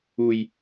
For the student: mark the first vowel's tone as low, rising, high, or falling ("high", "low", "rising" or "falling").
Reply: low